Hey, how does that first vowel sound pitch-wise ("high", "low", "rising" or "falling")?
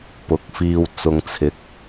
rising